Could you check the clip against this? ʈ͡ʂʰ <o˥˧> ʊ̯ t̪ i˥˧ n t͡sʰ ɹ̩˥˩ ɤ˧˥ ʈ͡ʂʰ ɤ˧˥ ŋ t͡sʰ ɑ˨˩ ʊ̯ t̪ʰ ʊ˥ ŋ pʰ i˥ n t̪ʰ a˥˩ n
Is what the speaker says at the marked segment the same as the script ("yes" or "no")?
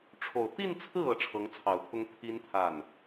no